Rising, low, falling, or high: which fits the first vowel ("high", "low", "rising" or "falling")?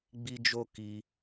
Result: high